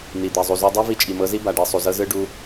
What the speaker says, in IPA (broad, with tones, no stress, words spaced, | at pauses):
n̪i˨d̪ɛ˨ zˤu˨zo˧ dˤe˦ vi˧t͡ʃʼi˨mɤ˧zi˦ ba˨ɖe˧ sˤu˨zɤ˦zɯ˦ ɖu˧